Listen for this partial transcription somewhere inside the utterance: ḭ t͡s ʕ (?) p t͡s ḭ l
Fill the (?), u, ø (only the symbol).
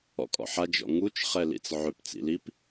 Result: ø